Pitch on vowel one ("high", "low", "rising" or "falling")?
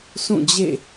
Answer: falling